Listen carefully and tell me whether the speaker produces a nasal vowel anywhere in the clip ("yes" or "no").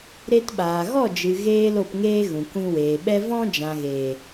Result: yes